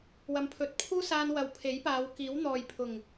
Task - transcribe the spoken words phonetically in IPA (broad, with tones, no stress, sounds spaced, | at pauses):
w ɐ˨˧ m pʰ ɵ˨ t̚ pʰ uː˥ s aː˧ n w ɐ˨ w pʰ e˨˥ j p aː˨˧ w k iː˨˥ w n̪ ɔː˨ j pʰ ʊ˨˩ ŋ